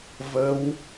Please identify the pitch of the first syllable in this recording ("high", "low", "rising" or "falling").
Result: rising